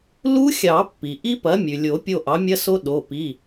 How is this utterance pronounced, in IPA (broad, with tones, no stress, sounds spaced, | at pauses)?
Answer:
l u˦˥ xʲ ɑ˨˩˦ pː i˩ ʔ i˦˥ p ɐ˩˥ mʲ ʉ˩ lʲ o˨˩˦ pʲ o˦˨ ʔ ɑ˩˥ mʲ ɐ˦˥ s o˦˥ ɗ o˩˧˩ p i˩˧˩